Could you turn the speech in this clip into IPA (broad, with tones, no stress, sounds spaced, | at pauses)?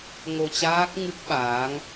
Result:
ŋ o˧ t͡ɕ aː˦˥ k̚ ŋ ɨ˦˥ k̚ ɓ aː˨˦ ŋ